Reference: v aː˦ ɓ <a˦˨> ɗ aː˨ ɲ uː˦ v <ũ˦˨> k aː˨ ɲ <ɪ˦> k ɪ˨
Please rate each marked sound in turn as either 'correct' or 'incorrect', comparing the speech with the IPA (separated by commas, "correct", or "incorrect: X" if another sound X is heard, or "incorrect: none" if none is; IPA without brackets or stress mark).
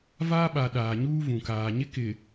incorrect: a˨, incorrect: ũ˨, correct